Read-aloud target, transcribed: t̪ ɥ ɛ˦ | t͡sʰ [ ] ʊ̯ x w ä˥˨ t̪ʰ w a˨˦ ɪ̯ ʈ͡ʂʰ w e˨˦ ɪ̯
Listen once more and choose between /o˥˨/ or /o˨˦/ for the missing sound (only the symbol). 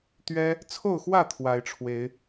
o˥˨